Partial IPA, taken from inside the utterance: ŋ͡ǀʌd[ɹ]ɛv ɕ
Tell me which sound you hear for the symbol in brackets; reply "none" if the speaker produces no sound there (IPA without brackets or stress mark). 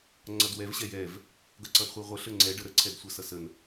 w